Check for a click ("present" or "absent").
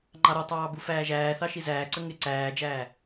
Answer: present